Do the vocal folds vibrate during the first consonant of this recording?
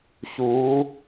no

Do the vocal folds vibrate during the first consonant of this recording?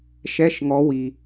no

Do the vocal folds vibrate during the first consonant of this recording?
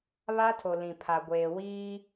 yes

